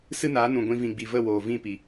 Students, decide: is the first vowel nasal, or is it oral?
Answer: oral